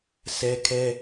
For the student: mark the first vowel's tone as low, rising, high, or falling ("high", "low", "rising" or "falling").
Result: high